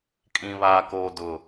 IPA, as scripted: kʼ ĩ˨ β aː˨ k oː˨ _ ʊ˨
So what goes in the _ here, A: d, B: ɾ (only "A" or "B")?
A